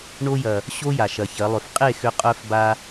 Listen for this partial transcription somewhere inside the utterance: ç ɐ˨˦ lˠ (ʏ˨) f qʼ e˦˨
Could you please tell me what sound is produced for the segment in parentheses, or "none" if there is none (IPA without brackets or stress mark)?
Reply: ʏ˨